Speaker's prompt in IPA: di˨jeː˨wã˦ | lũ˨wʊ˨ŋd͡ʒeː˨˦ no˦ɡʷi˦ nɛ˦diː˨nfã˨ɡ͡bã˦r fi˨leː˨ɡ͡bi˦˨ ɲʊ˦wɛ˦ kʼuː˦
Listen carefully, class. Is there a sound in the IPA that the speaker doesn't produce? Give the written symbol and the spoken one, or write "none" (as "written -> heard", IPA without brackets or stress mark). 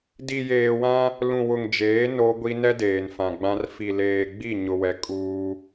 iː˨ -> eː˨